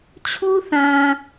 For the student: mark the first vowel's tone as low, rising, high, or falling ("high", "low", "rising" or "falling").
high